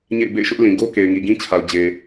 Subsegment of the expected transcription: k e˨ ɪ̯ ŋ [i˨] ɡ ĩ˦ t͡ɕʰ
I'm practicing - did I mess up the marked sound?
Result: no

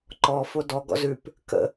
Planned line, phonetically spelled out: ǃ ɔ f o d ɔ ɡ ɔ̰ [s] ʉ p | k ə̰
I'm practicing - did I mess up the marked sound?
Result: yes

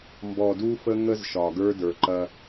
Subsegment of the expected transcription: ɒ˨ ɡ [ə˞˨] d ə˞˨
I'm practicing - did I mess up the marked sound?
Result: yes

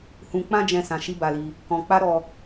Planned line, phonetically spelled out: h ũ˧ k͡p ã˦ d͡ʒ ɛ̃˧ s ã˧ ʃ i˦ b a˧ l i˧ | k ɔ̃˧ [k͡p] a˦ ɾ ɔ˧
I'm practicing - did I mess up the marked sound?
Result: no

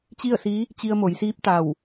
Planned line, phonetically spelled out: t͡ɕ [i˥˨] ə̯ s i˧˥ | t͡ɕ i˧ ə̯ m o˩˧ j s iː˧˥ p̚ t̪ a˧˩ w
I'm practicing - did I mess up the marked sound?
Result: no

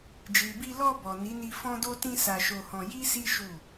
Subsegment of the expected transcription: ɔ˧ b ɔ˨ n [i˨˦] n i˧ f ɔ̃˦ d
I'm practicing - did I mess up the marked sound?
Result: no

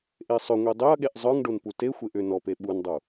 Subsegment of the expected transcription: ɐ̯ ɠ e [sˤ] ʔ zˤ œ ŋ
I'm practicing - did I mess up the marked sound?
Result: yes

